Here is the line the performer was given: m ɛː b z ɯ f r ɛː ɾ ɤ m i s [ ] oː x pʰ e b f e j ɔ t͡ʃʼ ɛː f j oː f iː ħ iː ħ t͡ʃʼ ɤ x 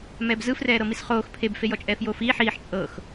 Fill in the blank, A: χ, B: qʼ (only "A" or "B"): A